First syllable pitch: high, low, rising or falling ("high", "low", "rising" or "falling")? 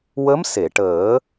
rising